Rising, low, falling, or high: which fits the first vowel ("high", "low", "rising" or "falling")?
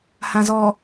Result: low